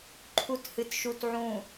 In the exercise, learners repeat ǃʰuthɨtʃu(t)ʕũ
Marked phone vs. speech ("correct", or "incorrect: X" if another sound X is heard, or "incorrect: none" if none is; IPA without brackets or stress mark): correct